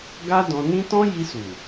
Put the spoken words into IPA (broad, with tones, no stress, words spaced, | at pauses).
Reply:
ɡa˦dɔ̃˧nĩ˦ tɔ̃˦ ji˧su˨